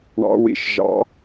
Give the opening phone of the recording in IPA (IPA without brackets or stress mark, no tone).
ɳ